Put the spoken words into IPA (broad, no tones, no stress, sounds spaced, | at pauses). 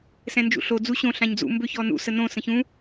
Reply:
s ɛ̃ n d͡ʒ ṵ ɬ o d͡z u ɕ õ ɬ ã ɲ d͡z ṵ m b ø ç ɔ n ṵ s ə n õ s ə̃ ç ũ